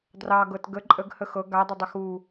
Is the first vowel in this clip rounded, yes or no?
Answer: no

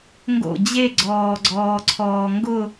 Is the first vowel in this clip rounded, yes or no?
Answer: yes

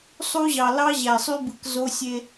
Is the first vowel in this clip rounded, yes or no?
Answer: yes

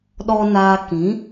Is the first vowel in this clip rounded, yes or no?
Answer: yes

